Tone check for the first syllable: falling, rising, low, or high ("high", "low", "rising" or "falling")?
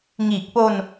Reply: low